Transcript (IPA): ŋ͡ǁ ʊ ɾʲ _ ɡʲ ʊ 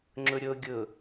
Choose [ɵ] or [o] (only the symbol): o